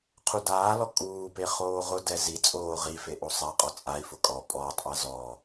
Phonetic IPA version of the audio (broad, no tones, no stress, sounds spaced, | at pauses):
qʰ u d aː l ɔ kʼ uː p e χ oː ʁ ʊ d ɛ z i t͡sʼ oː ʁ i f e ʔ o sˤ a qʼ ɔ t͡sʼ a i̯ f ʊ kʼ ɔ pʼ ɔː tˤ ʔ a z ɔ